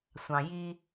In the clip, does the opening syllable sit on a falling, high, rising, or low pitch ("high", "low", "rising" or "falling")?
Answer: low